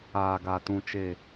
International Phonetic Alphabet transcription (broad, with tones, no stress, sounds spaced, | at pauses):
aː˨ ɡ a˨ t ũ˨ t͡ʃ e˨